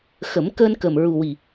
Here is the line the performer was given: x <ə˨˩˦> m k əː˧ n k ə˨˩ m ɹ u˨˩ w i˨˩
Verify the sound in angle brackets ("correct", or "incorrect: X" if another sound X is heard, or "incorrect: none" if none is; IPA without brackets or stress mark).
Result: correct